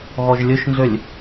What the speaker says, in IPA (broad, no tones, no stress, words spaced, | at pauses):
ɣɔʒlʲɵʃnzølʲ